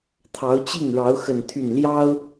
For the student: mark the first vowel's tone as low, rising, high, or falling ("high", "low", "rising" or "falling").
rising